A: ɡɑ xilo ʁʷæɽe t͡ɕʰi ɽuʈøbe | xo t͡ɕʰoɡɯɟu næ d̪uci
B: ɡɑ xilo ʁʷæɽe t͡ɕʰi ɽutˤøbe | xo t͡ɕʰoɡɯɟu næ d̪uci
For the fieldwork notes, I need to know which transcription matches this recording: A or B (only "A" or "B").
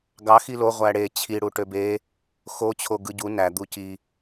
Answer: A